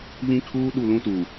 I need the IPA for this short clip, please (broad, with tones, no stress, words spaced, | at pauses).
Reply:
βĩ˦kʰuː˦ ɗu˦˨lũ˦tuː˨